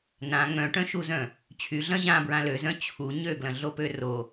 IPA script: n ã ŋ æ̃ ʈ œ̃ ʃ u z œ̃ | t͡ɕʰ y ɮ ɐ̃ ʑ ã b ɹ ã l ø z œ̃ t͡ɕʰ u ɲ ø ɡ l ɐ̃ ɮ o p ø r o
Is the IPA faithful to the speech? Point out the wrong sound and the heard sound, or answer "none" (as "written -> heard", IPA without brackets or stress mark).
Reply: æ̃ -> œ̃